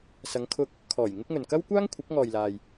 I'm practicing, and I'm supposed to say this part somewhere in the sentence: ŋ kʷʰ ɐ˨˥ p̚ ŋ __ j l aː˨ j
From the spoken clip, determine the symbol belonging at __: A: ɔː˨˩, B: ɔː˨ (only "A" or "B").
B